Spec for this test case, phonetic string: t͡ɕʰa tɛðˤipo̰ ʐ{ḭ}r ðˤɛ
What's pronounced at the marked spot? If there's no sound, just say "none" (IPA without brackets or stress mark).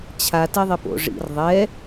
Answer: ḭ